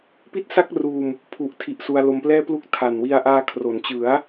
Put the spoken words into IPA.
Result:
p i˥˩ t̚ s a˥˩ k̚ r uː˧ m | pʰ u˨˩ ʔ tʰ i˨˩ ʔ s u˧ a̯ l o˧ m p l ɛː˥˩ p l u˥˩ k̚ tʰ a˨˩ n w i˧ a̯ ʔ aː˧ kʰ r o˩˦ n t͡ɕ ɯ˩˦ a̯

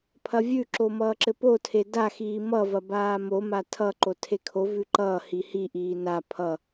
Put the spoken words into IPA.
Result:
pʰ ɐ vʲ ʉ ǁ o m ʌː ǁ ɘ p o tʰ e d a x iː m ʌ v ɐ b aː m o m a tʰ ʌ ǃ o tʰ e kʰ o v ʉ ǃ ʌː h i h i ʔ iː n a pʰ ʌ

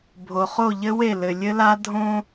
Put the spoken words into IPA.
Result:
bʱ o˨ χ o˦˨ ʎ ɘ˦ w e˦˨ l ɘ˨ lʲ ɘ˦ l a˦ dʱ õ˦

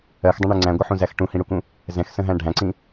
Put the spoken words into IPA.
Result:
ɜ x dˤ ə̃ ɳ ɜ ŋ͡ǀ æ̃ ɡʷ ə ħ ũ z æ x ʈ ũ h ĩ ɽ u k ũ | z ɛ̃ x s ə̃ ɦ æ̃ ɖʱ æ̃ ǀ ĩ

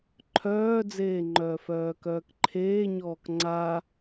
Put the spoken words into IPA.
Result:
ǃʰ œː d͡z eː ŋ͡ǃ œː f œː k œː k ǃʰ eː ɲ ɔː k ŋ͡ǀ a

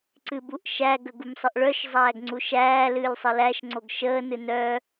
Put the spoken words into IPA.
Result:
ǀ ɨ b u ʔ ʃ æ ɡ ə ɡ u m sˤ ə ʔ ɭ œ ʃ zˤ æː ɡ ŋ͡ǀ u ʃ æː l ɨː lʲ sˤ ə l æ ʃ ŋ͡ǀ o ɡ ʃ əː n ɨ n œ

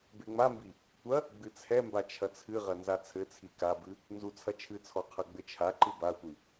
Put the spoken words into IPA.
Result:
b e ŋ͡m a m b i | tʷ ɐ | ɡ͡b ɨ t͡sʰ ɛ m b a t͡ʃʰ ɐ t͡sʰ ɨ ʁ ɐ n z a t͡sʰ ɘ t͡sʰ i k a b ɨ | n z u t͡sʰ ɐ t͡ʃʰ ɨ t͡sʰ ɔ qʰ ɐ ɡ͡b ɘ t͡ʃʰ a ǃ ɨ b a tʷ i

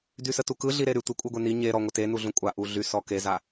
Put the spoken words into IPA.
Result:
d y s ə t u k ɯ ɮ i ɾ e ɾ y tʷ ɪ kʷʼ ɯ ɡʷ e n i ɲ e ɾ ɔ ŋʷ ɪ t e n u ɮ ũ kʷʼ a ʔ u ɮ y s ɔ k e z a

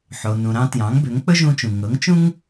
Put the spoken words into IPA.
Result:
ħ o˩ n ũ˩ ɾ ɑ̃˧ t j ɑ̃˩˥ ŋ b ø˩˥ ŋ k͡p ɵ˥ ʒ ũ˧ t͡ʃ ũ˩ ŋ ɤ˩˥ ŋ t͡ʃ ũ˥ ŋ

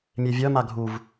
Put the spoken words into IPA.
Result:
mʲ e vʲ œ m a ɡʱ u v

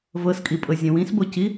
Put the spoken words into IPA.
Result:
v ɤ s kʼ i pʼ ɤ zʲ ə̃ w ĩ s b o c i

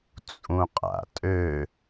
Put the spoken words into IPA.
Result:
t͡sʼ ũ qʼ a̰ tʼ ø

